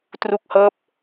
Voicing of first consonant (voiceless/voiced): voiceless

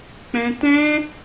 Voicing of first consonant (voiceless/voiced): voiceless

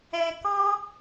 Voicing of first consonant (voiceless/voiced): voiceless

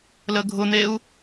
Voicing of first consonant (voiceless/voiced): voiced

